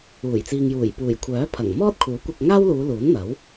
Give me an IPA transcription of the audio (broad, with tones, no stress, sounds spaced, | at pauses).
uː˨˩ j t͡s iː˨ ŋ j uː˨˩ j p uː˨˩ j kʷʰ œː˨˥ pʰ ɐ˨˩ ŋ m ɔː˥ t̚ kʰ uː˨˥ kʷ ɐ˧ k̚ ŋ aː˥ w l uː˨˧ l uː˨˥ n n̪ ɐ˨˥ w